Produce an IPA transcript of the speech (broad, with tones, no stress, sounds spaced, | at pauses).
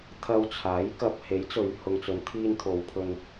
t̪ʰ ɐ˧ w t͡sʰ aː˨˥ j k ɐ˧ p̚ h e˨˥ j t͡s ɵ˨˧ ɥ h ʊ˨ ŋ t͡s ɵ˨˧ n t̪ʰ iː˧ n t̪ʰ o˨˧ w pʰ ɵ˧ n